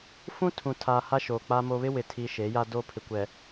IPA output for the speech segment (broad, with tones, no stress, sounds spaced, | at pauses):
f ũ˦ tʰ ũ˨ tʰ aː˨ h a˦ ʃ oː˨ k͡p a˨ m o˨ β ɪ˦ w ɪ˨ tʰ i˨ ʃ e˨˦ j a˦ d o˦ pʰ ɪ˨ kʷ ɛ˨